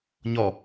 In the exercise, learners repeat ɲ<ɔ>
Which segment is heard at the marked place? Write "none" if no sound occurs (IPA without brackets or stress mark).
ɔ